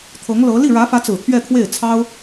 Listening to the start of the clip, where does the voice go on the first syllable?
rising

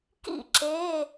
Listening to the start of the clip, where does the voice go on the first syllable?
falling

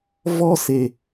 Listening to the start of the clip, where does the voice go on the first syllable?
high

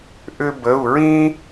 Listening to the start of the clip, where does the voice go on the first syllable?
high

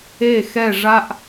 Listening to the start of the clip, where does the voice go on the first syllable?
falling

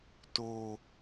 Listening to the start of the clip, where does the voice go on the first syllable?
low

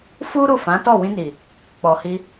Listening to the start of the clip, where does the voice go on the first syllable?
high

